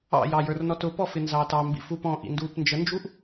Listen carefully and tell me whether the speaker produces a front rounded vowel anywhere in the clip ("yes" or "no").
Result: no